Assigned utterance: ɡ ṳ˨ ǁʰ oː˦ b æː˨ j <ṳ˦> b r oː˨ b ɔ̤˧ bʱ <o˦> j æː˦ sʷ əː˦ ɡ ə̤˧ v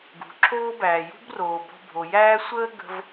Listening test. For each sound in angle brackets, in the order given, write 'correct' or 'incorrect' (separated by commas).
correct, incorrect